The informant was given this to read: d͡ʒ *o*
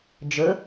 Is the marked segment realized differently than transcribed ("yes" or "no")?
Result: yes